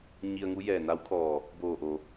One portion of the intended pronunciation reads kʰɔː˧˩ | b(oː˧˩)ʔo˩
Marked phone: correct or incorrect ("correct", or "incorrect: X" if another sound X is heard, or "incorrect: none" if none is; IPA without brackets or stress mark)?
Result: correct